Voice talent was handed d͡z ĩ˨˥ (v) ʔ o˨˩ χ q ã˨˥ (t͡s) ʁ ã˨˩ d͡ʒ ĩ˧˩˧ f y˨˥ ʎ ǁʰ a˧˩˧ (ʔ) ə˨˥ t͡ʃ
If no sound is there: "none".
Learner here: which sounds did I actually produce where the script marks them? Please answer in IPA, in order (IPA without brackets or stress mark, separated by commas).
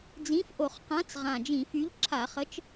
f, t͡s, χ